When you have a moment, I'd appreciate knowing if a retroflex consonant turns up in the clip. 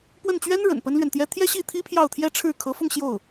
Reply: yes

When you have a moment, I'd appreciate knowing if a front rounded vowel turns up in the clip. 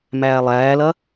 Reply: no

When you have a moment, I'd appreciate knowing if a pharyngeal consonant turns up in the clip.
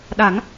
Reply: no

